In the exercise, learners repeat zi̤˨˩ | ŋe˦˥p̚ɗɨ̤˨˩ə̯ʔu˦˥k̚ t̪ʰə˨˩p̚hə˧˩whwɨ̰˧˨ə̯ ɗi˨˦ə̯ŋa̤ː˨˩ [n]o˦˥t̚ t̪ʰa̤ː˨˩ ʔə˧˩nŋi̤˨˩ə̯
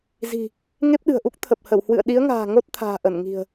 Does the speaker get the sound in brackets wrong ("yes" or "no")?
yes